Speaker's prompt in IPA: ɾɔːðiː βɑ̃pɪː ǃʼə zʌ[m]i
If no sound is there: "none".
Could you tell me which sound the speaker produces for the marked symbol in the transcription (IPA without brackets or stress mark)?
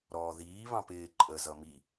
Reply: m